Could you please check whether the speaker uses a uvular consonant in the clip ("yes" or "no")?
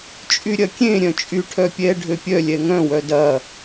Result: no